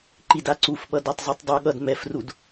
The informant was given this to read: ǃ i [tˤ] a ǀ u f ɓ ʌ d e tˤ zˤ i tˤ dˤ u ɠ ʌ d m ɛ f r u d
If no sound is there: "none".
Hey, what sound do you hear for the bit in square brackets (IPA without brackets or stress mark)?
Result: d